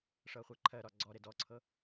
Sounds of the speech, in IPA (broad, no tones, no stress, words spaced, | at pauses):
ʂɤχʷɛǃʰɜɾɒ ɡ͡ǀɔɾe dɔǀʰɤ